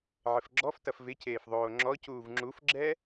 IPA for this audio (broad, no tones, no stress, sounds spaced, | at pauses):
ʕ ɪ f ɡ͡ǁ ɔ f t ɐ f v ɪ c eː f ðˤ oː ŋ͡ǁ ɔ c uː v ŋ͡ǁ u f ɡ͡ǁ ɛ